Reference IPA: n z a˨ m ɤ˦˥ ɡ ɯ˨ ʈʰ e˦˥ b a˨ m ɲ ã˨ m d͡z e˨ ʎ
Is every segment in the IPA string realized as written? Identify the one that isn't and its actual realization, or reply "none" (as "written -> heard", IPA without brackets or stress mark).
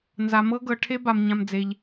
ɯ˨ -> ɤ˨